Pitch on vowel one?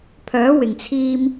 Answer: rising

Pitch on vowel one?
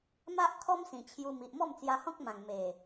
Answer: high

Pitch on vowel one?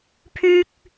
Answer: high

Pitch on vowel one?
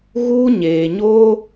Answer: high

